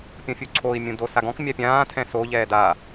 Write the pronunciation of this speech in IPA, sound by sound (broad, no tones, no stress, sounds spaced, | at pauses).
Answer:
pʲ ɔ̃ fʲ u ǀʰ o i̯ mʲ ũ d o s a ɡ ɔ̃ k mʲ a pʲ ãː tʰ ɛ̃ s o ʎ ɛː d a